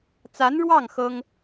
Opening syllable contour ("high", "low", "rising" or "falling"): rising